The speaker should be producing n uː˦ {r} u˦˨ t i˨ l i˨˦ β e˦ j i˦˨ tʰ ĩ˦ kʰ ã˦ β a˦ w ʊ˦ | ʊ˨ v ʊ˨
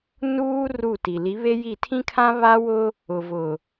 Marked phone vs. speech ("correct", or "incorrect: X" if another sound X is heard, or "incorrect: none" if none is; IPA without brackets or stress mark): correct